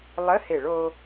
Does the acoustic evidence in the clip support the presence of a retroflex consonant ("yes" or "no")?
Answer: yes